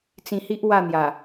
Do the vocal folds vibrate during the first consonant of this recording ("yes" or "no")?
no